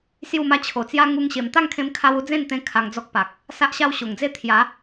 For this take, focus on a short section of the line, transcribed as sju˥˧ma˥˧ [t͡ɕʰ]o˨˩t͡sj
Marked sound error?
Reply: no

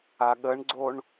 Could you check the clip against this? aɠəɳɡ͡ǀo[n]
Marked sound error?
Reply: yes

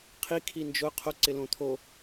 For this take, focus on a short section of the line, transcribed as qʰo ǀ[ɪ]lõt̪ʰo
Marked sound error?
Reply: no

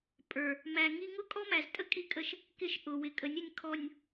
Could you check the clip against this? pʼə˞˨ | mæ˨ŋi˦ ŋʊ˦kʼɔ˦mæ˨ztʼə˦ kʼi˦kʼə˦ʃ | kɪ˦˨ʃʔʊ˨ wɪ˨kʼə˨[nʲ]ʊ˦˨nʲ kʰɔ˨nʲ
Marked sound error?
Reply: no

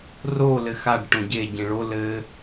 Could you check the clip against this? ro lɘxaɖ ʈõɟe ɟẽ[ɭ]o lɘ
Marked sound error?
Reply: no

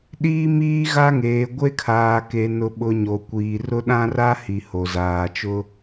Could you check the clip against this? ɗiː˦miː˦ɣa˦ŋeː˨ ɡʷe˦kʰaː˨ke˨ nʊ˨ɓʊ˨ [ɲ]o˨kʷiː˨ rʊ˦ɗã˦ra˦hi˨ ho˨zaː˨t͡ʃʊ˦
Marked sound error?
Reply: no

